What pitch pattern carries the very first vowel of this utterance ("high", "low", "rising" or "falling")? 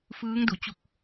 rising